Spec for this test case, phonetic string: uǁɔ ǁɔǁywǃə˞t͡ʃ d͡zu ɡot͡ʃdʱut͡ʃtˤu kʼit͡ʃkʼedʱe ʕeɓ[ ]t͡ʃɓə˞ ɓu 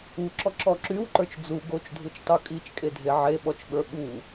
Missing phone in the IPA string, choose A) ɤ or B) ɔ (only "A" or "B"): B